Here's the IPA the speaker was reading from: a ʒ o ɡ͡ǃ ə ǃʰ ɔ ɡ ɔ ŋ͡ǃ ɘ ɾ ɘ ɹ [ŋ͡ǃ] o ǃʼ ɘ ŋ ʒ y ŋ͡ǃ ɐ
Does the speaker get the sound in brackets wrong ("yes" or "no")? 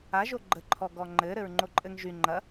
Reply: no